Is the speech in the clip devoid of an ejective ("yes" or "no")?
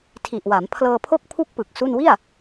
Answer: yes